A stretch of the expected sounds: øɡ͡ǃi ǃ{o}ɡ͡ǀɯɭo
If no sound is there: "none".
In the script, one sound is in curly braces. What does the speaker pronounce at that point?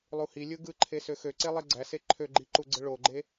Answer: u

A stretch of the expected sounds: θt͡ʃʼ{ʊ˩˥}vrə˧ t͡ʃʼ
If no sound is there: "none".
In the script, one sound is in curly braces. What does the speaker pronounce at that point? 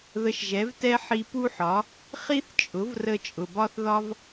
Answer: ʊ˩˥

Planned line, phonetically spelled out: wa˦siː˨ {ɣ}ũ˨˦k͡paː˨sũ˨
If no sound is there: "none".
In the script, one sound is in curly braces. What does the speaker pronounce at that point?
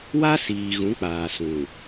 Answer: ɣ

